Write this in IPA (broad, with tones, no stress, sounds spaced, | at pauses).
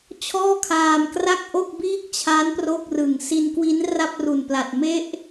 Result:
t͡ɕʰ ɔː˥˩ kʰ aː˧ m k r a˥˩ k̚ ʔ o˥˩ k̚ b iː˥˩ k̚ t͡ɕʰ a˦˥ n p r o˥˩ k̚ r ɯ˨˩ ŋ s i˧ n k w i˦˥ n r a˥˩ p̚ r u˨˩ n p l a˨˩ t̚ m e˥˩ ʔ